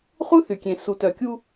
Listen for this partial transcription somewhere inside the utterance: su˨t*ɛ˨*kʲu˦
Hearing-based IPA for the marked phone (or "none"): œ˨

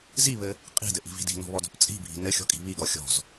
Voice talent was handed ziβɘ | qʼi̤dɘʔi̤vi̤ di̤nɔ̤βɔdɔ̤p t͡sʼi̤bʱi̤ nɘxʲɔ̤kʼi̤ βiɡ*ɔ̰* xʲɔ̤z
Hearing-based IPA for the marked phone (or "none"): ɔ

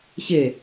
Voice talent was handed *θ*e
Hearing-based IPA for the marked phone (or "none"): ɕ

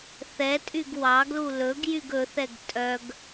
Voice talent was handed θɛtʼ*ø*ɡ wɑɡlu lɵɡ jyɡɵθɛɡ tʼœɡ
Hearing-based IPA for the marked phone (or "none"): y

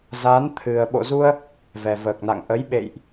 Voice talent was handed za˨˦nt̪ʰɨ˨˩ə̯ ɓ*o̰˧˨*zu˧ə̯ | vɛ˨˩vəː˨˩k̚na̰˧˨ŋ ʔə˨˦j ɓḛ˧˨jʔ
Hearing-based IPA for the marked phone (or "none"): o̰˧˨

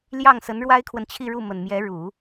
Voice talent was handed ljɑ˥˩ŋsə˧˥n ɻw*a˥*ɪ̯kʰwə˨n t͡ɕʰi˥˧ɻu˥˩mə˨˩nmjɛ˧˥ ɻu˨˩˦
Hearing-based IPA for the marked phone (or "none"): a˥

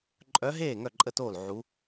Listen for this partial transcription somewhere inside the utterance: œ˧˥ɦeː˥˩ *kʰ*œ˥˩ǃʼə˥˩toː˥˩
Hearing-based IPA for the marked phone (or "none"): ŋ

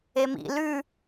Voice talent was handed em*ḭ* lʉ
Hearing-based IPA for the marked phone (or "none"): ḭ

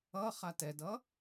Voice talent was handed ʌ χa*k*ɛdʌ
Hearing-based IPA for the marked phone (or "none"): t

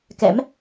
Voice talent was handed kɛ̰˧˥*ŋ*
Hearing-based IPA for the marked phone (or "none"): m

